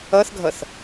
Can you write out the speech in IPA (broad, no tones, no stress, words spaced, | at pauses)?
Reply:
ʌθɡʱʌθ